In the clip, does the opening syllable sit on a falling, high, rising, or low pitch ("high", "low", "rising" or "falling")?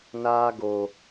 high